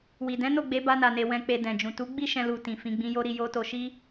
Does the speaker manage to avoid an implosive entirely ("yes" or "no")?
yes